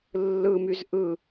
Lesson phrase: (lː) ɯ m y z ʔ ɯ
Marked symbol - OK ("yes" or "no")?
yes